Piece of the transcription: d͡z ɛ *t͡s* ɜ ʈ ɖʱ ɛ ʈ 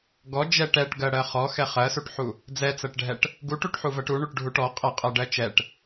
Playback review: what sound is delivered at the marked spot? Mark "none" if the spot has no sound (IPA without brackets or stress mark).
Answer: t͡s